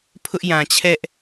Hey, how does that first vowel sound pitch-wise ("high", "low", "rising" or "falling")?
high